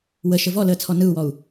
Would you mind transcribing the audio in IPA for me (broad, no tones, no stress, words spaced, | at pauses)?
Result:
wəʃə vɔləːt͡sʰɔ nɯu̯wɔu̯